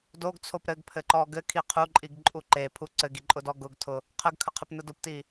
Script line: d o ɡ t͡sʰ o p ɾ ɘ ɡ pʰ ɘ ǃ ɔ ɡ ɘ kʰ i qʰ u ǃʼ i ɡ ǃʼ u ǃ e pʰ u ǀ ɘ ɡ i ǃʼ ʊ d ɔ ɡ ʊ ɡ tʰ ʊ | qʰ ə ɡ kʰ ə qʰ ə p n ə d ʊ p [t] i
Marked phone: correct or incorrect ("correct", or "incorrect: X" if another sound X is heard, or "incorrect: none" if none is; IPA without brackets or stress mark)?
correct